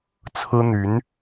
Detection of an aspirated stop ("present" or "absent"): present